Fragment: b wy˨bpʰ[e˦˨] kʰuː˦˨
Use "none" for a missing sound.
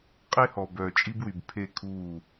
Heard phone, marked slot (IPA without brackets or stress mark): e˦˨